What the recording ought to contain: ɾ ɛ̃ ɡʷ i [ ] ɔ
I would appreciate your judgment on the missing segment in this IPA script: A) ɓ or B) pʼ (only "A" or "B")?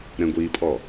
B